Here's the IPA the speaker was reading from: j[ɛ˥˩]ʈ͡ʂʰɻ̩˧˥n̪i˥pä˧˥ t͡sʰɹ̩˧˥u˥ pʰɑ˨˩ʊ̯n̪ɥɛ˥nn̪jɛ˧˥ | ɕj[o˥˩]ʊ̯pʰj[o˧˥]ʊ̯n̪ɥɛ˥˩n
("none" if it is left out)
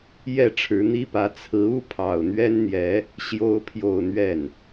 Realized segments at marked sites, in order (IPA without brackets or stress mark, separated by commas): ɛ˥˩, o˥, o˥˧